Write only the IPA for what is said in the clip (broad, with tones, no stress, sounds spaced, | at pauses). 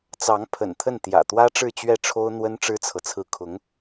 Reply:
t͡s ɑ˧˥ ŋ pʰ ə̰˨˩ n t̪ʰ ə˥˩ n t̪ j ä̰˨˩ t̪ w ä˥ ʈ͡ʂ ɻ̩˥˧ t͡ɕ ɥ ɛ˥˩ ʈ͡ʂʰ o˥ ʊ̯ n̪ w ə˥ n ʈ͡ʂ ɻ̩˥ t͡sʰ ɤ˨ t͡sʰ ɹ̩˥˩ kʰ ʊ˧˥ ŋ